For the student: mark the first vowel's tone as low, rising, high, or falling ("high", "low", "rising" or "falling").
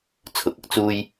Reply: rising